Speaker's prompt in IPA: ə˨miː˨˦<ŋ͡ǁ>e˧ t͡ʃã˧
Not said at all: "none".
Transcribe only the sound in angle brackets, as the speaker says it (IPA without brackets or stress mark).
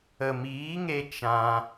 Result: ŋ